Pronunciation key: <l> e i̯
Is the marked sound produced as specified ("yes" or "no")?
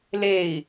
yes